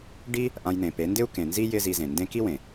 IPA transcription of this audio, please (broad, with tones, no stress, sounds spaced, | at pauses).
ɖ i˦ | ʔ ã˧ j n̪ ẽ˨ p e˨˦ n d ɪ˦ u̯ k ẽ˨ n z i˦ j ɪ˦ z i˧ z ẽ˨ n d ẽ˦ k i˦ w ẽ˨